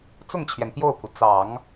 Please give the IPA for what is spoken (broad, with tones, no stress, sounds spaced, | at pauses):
t͡s ʊ˥˩ ŋ t͡ɕʰ ɥ ɛ˩ n p j o˥˩ ʊ̯ pʰ u˩ t͡s ɑ˨˩˦ ŋ